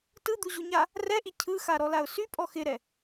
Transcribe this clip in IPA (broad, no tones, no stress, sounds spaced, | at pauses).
t ɯ d̪ u ʑ u ɲ a | r ɛ ʔ i cʰ ɯ x a ɾ ɔ l a ʊ̯ s y pʼ ɔ x ɪ ɾ ɛ